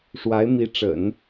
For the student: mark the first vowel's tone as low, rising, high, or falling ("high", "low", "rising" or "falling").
rising